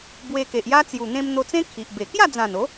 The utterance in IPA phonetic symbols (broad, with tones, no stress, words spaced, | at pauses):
bwe˧ke˨ʔja˦ t͡sju˨˩n̪ẽ˧mn̪o˧t͡sẽ˦ kʰi˨ʔbe˨˩ kja˥˧d͡zã˨˩no˨˦